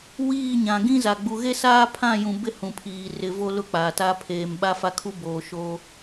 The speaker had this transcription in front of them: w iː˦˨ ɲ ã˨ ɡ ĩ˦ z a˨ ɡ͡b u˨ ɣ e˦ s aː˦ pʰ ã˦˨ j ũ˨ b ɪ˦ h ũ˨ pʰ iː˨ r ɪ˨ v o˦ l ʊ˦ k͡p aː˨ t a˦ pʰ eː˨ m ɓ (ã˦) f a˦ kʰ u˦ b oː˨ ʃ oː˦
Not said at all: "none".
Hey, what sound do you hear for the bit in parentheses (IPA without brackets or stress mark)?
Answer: a˦